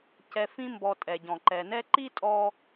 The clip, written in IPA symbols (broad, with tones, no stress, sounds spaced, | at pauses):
c ɛ˨ f ĩ˦ m b ɔ˨ tʼ ɛ˩ ɟ ɔ̃˩ ǃ ɛ˩ n ɛ˦ ǃ i˥ tʼ ɔ˦